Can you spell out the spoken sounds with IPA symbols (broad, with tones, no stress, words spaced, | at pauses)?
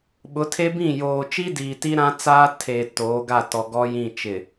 ɓʊ˨˦tʰe˦bĩ˦˨ joː˨t͡ʃi˦diː˨ ti˦ɾã˦t͡saː˦ tʰe˨ toː˨˦ɡa˦˨ tɔ˨ ɡɔ˦jĩ˦˨ t͡ʃɪ˨